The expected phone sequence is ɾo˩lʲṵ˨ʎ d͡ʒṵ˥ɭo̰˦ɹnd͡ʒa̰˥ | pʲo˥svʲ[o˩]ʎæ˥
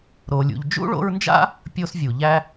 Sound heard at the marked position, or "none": u˩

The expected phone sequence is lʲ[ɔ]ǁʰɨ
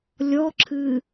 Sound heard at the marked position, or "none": ɔ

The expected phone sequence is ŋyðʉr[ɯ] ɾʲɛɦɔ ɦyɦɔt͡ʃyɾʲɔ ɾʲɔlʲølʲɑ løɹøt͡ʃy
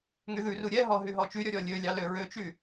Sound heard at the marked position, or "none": u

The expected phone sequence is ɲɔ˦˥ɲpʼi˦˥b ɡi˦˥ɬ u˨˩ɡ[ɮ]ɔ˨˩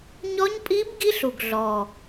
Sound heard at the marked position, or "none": ɮ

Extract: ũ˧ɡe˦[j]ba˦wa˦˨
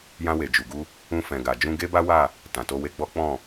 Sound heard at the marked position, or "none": none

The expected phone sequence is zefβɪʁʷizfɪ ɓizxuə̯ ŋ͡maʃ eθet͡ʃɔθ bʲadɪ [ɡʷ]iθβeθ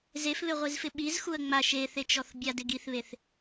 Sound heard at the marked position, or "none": ɡ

